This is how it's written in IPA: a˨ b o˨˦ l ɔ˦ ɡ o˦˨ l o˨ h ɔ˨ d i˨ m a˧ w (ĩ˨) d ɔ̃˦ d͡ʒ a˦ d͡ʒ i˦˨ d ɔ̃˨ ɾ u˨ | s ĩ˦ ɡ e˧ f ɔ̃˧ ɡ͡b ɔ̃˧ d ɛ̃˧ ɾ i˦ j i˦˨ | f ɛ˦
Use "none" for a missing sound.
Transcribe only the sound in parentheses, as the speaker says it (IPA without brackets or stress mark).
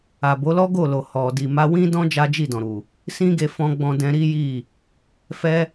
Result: ĩ˦